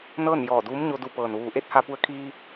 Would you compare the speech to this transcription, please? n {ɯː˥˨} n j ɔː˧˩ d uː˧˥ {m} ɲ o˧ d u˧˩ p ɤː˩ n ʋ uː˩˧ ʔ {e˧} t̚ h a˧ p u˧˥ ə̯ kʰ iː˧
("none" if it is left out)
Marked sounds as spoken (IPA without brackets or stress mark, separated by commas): ɤː˥˨, m, e˧˥